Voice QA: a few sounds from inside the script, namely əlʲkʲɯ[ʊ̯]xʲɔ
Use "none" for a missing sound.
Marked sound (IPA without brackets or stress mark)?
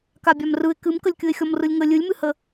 ɪ̯